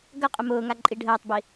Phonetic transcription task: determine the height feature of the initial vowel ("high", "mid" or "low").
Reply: low